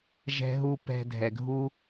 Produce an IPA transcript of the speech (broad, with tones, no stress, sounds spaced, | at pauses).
ʒ ɛ̤˧ ɦ u˧ p ɛ̤˧ dʱ ɛ˨ ɡʱ u˦